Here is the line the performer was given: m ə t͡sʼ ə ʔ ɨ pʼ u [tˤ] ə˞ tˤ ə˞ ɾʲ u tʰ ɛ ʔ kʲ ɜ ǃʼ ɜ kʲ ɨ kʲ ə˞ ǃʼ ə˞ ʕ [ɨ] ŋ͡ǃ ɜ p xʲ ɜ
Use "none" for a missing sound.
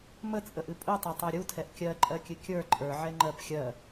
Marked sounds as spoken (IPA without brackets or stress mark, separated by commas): tˤ, ɛ